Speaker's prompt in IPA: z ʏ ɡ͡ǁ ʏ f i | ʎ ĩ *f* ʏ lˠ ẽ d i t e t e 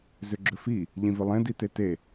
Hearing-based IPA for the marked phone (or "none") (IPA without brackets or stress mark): v